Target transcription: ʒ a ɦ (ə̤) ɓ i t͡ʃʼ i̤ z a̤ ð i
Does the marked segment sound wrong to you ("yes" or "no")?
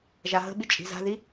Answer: no